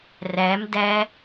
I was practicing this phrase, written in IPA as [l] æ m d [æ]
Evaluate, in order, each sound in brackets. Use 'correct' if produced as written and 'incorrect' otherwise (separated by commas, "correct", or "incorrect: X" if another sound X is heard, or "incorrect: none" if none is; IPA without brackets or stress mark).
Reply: incorrect: r, correct